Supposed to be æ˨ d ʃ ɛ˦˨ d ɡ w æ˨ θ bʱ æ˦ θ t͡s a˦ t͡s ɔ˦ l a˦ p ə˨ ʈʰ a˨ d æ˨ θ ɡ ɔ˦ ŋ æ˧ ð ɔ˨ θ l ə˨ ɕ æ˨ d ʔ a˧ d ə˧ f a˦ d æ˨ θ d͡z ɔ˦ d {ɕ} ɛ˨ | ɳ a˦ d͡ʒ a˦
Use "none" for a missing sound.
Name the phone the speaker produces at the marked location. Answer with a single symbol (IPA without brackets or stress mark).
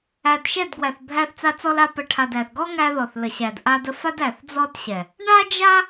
ɕ